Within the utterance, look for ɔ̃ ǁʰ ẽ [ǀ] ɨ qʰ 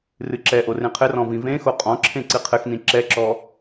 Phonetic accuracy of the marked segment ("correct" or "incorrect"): correct